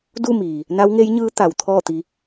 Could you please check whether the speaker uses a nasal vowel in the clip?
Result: no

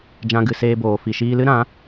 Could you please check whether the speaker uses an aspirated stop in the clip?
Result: no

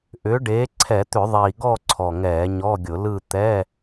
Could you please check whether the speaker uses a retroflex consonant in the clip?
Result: yes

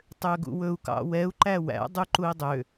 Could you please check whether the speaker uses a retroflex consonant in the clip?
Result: no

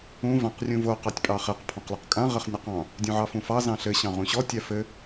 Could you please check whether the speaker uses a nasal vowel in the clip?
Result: yes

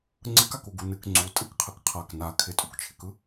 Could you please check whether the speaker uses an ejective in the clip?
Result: yes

